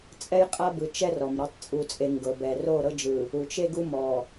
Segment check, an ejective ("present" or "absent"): present